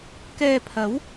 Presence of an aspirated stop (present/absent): present